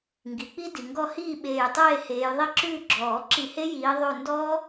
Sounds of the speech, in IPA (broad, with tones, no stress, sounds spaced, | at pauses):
ŋ ɡ i˩ k͡p i˦ d i˩ ŋ ɡ ɔ˧˩ h iː˥˨ ɓ eː˧˩ j tˤ eː˥˨ h eː˨˦ j ðˤ i˦ ǁ ʉː˥˨ ɡ͡ǁ ɔː˨˩˦ ǁ i˧˩ h e˦ j iː˨˦ ðˤ ʉ˧˩ n d ɔː˦